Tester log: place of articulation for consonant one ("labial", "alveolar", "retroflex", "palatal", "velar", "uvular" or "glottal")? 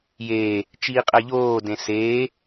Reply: palatal